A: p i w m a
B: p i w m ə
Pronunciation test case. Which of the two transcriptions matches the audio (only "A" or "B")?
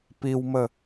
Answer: B